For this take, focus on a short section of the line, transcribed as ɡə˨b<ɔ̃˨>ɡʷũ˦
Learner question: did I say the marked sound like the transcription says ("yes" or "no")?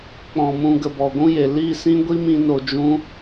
no